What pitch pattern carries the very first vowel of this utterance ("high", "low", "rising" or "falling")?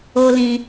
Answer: high